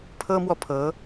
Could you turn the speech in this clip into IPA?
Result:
pʰ ɤ˥ m w ɔ˨ pʰ ɤ˧˥

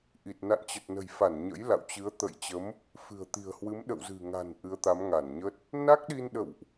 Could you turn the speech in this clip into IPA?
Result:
ʔ i˨˩ t̚ n a̰˧˨ n t͡ɕ ə˨˩ t̚ n ə̤˨˩ j f a˧˩ n ɲ ə̰˧˥ j l a̰˧˨ w t͡ɕ ɨ˨˦ ə̯ t̪ ə̰˧˨ j t͡ɕ ə˨˦ m | f ɨ̤˨˩ ə̯ t̪ i̤˨˩ ə̯ h w ɨ˨˦ m ɗ ə̰˧˨ w z ɨ̤˨˩ ŋ a̤˨˩ n ʔ ɨ˨˦ ə̯ t̪ a˨˦ m ŋ a˧˩ n ɲ ə˦˥ t̚ | n a˦˥ k̚ ɗ i˧ n ɗ ə̰˧˨ w ʔ

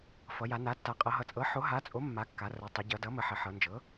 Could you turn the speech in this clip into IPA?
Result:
f ʌ˩˧ j a˩˧ n a˩˥ tː a˩˥ qʼ ɤ˩˧ ɦ ʌ˩˧ t͡sʼ ɤ˩˥ ħ o˩˥ ɦ a˩˥ t͡sʼ o˩˥ mː a˩˥ kː a˩˧ r ɤ˩˧ tˤ o˩˧ ɟ ʌ˩˧ d ʌ˩˥ m ə˩˧ ħ ə˩˧ ħ ɤ˩˧ n d͡ʒ ɤ˩˥

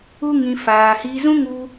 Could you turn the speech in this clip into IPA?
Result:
u˦ ŋ ĩ˧ f aː˧ h iː˧ z ũ˦ ŋ u˦

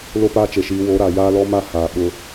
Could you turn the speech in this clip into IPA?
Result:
l o˦ p aː˦ t͡ʃ e˨ ʃ iː˨˦ w o˨˦ ɾ a˨ j aː˦ l ɔ˦ m a˦ h aː˨ ɓ ʊ˦

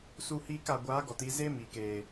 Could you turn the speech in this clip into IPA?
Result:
s u˧ h iː˧ k a˨ ɡʷ aː˨˦ ɡ ɔ˨ t i˧ z e˦ m iː˨ k eː˨

